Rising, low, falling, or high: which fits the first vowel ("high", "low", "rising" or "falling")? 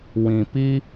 low